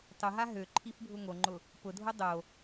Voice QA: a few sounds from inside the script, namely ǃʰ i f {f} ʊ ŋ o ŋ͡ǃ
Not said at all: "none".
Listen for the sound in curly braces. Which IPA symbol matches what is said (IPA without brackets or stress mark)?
bʱ